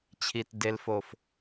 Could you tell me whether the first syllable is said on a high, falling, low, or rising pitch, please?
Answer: low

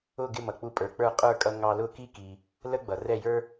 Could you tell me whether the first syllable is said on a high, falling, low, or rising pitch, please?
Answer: falling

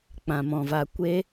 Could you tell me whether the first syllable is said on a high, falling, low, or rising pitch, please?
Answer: low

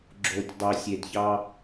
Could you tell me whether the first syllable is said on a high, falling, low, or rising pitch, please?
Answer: low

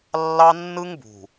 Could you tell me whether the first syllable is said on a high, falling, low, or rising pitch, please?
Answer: high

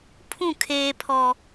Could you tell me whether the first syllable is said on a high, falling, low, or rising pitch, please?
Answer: falling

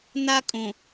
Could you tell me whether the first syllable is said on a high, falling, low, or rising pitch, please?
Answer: high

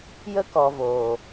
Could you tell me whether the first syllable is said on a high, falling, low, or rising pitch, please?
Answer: high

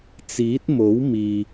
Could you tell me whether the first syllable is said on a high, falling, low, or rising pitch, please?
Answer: rising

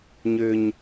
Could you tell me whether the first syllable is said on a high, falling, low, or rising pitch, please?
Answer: low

